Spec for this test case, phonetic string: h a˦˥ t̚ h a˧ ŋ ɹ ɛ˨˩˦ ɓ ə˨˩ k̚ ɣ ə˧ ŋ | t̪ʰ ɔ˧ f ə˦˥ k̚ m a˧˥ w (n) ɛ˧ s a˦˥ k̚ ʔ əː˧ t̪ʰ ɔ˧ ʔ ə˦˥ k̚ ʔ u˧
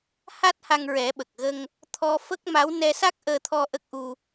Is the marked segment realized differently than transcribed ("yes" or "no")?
no